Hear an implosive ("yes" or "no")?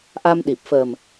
yes